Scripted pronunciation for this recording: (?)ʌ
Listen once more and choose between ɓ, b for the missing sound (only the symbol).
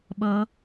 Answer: ɓ